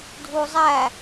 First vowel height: high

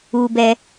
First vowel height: high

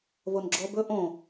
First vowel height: mid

